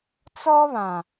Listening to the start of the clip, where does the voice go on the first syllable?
high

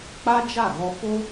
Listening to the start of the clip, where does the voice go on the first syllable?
high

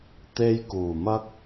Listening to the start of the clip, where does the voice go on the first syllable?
high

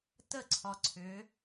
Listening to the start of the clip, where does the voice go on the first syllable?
falling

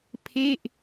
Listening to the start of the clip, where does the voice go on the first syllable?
falling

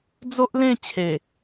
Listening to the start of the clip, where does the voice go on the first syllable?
high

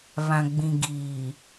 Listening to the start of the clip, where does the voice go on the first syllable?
low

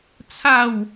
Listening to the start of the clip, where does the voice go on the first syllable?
falling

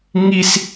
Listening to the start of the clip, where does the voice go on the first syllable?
high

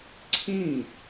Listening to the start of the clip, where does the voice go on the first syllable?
falling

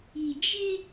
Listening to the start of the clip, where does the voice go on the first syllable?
low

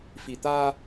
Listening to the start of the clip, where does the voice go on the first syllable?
low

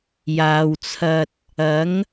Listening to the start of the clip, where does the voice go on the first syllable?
low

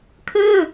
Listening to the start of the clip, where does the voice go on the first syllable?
falling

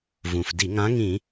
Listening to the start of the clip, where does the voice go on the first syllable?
low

